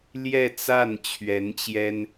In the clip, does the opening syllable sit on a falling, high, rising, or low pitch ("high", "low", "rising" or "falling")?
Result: falling